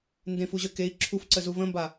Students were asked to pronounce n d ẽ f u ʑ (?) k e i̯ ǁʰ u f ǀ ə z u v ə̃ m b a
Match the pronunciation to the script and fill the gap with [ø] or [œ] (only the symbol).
œ